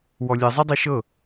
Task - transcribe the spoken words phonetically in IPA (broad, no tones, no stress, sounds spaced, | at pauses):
w ɔ lʲ ɛ zˤ ɛ dˤ e ʃ ɤ